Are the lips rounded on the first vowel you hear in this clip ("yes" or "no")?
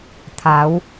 no